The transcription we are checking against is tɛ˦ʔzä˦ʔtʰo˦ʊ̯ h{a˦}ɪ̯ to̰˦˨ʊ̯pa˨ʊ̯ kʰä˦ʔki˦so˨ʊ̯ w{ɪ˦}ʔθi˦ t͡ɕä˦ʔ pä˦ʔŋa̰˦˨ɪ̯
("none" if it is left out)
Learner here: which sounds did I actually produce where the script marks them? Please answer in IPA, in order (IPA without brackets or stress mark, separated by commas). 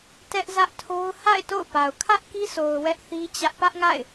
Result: a̰˦˨, ɛ˦